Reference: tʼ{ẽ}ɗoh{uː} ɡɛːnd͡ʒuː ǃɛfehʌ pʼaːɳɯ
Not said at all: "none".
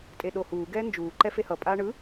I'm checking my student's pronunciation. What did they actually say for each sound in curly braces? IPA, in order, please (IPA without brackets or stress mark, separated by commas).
e, uː